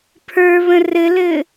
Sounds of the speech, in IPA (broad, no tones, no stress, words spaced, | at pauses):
pʰə˞βə̃ rɘlɘː